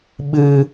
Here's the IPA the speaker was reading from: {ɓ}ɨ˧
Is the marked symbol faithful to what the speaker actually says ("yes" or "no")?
yes